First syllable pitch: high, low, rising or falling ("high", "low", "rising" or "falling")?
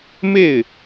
falling